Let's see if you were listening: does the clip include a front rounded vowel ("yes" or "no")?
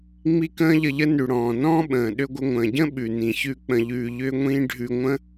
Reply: yes